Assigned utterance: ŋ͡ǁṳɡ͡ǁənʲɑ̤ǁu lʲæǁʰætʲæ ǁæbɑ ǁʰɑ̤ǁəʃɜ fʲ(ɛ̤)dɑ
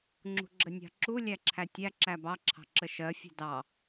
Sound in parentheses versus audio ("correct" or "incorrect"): correct